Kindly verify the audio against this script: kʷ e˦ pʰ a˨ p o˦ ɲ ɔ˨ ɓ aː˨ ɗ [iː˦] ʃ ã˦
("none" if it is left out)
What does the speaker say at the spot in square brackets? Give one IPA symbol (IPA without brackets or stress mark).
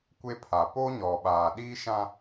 iː˦